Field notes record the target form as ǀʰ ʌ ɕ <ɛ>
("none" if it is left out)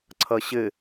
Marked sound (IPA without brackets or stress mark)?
ɘ